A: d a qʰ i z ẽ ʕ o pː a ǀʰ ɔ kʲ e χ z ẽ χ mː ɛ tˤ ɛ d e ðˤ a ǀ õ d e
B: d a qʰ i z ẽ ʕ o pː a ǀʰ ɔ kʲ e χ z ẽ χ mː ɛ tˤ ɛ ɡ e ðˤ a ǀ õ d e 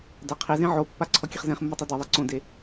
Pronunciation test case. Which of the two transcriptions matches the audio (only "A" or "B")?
A